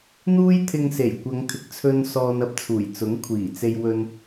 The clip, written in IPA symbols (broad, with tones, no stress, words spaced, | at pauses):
n̪uː˥jt̪ʰɪ˧ŋse˨˩j kʷɐ˨˧ŋt̪ʰɪ˨k̚t͡sʰɵ˧n sɔː˧nɐ˧p̚t͡sʰuː˨˩j t͡sʊ˨˥ŋkʷʰiː˨˩t͡se˧j wɵ˧n